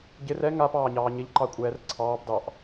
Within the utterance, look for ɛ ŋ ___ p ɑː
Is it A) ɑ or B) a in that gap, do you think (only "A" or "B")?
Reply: B